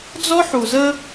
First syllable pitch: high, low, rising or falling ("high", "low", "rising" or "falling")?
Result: high